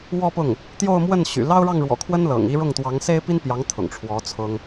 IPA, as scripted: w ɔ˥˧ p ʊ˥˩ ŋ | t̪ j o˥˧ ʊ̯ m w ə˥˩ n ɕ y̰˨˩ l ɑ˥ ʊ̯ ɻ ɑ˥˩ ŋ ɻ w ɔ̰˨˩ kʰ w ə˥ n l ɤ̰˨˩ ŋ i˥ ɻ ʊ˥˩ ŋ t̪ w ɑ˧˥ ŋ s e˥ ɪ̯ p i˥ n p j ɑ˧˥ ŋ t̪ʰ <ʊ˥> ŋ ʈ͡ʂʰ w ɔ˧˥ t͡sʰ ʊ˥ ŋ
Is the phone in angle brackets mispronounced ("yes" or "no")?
yes